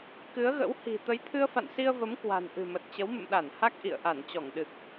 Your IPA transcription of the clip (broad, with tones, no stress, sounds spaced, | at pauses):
k ɨ˨˦ ə̯ ɣ ə̰˧˥ w h i̤˨˩ t̪ ə˨˦ j t̪ʰ ɨ˧ ə̯ f a̰˧˨ n s i˧ ə̯ v ə˨˦ m k w a̤˨˩ n ʔ ɨ̤˨˩ m ə˨˩ t̚ t͡ɕ ə˨˦ w m ə̰˧˨ m ɗ a˧˩ n h a˦˥ k̚ ʔ ḭ˧˨ ə̯ ʔ a˧˩ n t͡ɕ ɔ˧˩ ŋ ɗ ɨ˨˩ k̚